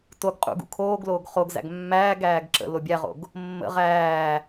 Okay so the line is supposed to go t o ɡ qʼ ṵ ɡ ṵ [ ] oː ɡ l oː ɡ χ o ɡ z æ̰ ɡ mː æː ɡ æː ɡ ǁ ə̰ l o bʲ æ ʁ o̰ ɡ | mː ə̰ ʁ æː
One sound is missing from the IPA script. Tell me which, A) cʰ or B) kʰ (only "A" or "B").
B